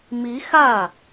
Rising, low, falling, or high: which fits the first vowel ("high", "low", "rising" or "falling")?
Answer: rising